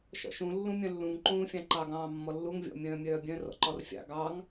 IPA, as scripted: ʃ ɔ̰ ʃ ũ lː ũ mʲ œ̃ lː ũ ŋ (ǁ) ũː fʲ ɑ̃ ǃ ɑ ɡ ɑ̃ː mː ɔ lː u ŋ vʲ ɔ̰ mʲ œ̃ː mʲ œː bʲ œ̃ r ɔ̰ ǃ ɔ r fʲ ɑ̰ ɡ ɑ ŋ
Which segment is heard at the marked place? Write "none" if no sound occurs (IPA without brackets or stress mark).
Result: ǃ